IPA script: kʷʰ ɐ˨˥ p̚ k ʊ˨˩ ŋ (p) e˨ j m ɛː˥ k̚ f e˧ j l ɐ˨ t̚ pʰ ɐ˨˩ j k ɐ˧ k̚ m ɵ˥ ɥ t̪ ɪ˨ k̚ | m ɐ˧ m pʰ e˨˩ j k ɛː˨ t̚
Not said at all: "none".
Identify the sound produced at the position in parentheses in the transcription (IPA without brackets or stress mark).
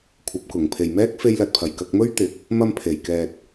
pʰ